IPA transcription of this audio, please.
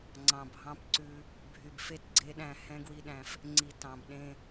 ŋ͡ǀɑ̃˨bʱɑ̃˦pǀʉ˦ | bʱy˨bfe˦tɡ͡ǀe˦ɗæ̃˦˨ hɛ̃˦ɡwi˦ɗæ̃˦f | ŋ͡ǀi˨ tɑ̃˨bɗẽ˦

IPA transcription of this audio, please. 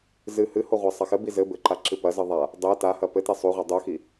zɨ hɨho ʁʷasˤɐxɘbi zɘ bɘǃa ǁɨpɐzɨ ðˤa | dˤe tahɐ pɘte sˤuʁʷɛ dˤuxi

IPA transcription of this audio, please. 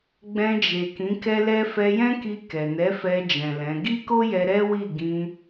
ɡ͡bɛ̃˧d͡ʒe˨ kĩ˨˦kɛ˦lɛ˦ fɛ˧jɛ̃˦ki˧ kɛ˨nɛ˨˦fɛ˧d͡ʒɛ̃˨ lɛ̃˨˦ ɡi˦ko˦jɛ˧ ɾɛ˦ wi˦˨ ɡĩ˧

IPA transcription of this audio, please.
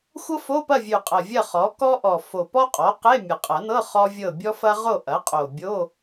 xʷɤ˥fo˧˥˧pɐ˥˨vʲʉ˨˩ qʼɐ˨˩vʲɐ˥˨χɔ˩˥ kɔ˥ʔɔ˨˩ fo˨˩pɔ˥qʼɔ˩˥qe˧˥˧ mʲɐ˨˩qʼɐ˨˩˦nɤ˧˥˧ χɔ˥ vʲɤ˥˨ bʲɔ˥fɐ˥ ʁo˥˨ʔɐ˩˥qʼo˨˩ bʲo˧˥˧

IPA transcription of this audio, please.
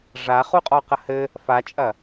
ʐa χuqʼɔqɐhɘ | fat͡ʃʼɐ

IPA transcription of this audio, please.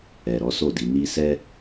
ɛ˨ɾɔ˨˦ so˦˨di˨˦ni˦ sɛ˦

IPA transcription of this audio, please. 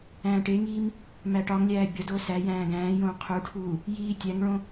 æ̃ːʈeŋiːm | mæʈɒŋlʲæː bʲɒdoː sæ jæ̃ːɡæ̃ːjõː qʰuʈʰuː | jiːtʲæŋɭõ

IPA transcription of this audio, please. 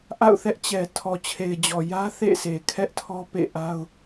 ʔa̰˦˨ʊ̯θɛ˦ʔt͡ɕɛ˨ tʰɔ˨t͡ɕʰe˨ɪ̯d͡ʑɔ˨ jä˦θḛ˦˨ se˨kʰɛ˦ʔtʰɔ˦ pḛ˦˨ʔa˦ʊ̯

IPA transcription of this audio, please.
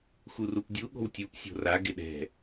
xurupdʲu ɠo̤wtʲup sʲo̤ra ɡɪɗɛ̤

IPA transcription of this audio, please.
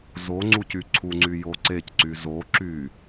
zoŋ͡ǀuc yǀʰuŋ͡ǀy joǀecǀy zoǁy

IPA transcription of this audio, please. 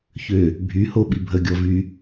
çø | bʱyhoɓi bʱəɡʲɔ vy

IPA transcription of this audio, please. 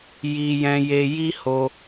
ji˧jɛ̃˧je˧ ji˦ho˧

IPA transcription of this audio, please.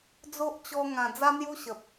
d͡zo˦ʔt͡ɕɔ˧ ŋã˨˩ d͡za˦n̪ju˦ɕə˨p̚

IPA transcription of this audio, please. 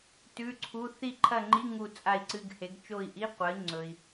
tʉ˧˥˧ǀʰu˧˥˧ θi˦˨ǃʰɐ˦˨ŋ͡ǃi˧˥˧ ŋu˦˨ t͡sʼa˦˨i̯ǀɨ˧˥˧ɡhe˨˥ɡ t͡ʃo˦˨i̯ʔi˧˥˧qʷɐ˨˥i̯ ŋ͡ǀɵ˨i̯

